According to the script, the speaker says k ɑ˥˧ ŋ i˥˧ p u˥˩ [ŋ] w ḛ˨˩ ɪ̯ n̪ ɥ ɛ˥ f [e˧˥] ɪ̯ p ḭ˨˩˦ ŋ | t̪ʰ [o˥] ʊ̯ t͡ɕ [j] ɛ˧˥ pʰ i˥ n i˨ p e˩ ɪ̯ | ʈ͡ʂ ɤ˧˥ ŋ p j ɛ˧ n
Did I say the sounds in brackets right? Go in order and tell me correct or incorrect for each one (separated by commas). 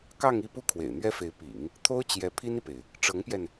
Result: incorrect, correct, correct, correct